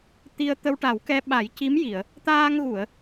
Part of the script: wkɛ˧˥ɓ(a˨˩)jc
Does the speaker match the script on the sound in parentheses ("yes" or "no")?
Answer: no